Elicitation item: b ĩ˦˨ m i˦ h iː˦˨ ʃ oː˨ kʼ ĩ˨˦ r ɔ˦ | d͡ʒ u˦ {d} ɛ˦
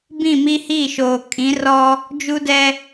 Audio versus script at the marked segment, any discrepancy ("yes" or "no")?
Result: no